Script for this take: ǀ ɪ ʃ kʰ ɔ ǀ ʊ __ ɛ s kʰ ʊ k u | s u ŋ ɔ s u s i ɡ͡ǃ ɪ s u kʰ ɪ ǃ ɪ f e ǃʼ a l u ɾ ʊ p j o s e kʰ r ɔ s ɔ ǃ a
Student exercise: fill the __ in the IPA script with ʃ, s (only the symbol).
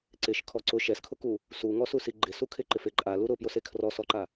ʃ